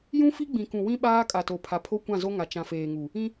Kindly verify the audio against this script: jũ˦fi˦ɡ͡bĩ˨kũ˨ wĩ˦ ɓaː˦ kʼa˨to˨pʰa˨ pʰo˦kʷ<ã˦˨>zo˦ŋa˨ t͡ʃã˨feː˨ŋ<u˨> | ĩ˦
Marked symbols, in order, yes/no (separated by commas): yes, yes